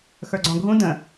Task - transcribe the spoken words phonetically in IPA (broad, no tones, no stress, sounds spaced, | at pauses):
x ə˞ ɡ͡ǀ ɔ̃ ɡʱ ũ d ə̃